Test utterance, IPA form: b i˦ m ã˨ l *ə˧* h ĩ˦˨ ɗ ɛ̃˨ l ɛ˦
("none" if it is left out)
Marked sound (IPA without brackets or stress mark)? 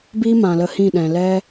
ə˧